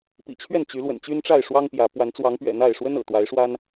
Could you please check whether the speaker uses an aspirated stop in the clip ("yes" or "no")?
yes